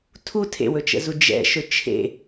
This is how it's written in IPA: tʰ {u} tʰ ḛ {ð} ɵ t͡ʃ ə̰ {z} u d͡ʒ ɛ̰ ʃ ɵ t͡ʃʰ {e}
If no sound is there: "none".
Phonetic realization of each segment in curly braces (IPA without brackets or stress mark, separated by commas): u, w, z, ḛ